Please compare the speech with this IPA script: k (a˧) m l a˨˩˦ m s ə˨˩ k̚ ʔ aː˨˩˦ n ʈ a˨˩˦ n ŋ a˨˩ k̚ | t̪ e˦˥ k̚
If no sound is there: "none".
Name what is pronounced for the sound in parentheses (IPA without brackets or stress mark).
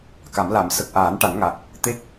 a˨˩˦